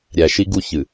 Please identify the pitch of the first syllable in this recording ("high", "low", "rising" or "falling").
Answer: low